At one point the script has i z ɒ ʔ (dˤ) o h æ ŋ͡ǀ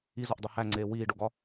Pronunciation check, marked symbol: correct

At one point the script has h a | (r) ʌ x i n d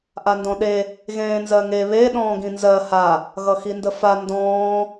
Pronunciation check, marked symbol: incorrect: ɣ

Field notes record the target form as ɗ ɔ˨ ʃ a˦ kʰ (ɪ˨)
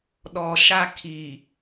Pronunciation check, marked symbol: incorrect: i˨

